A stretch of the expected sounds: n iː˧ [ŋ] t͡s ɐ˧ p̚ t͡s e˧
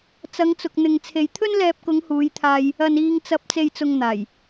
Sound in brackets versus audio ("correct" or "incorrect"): correct